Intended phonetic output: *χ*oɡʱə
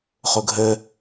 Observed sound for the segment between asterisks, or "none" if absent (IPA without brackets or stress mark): χ